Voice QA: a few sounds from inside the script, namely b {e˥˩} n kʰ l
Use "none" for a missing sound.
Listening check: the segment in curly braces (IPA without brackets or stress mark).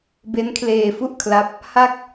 e˦˥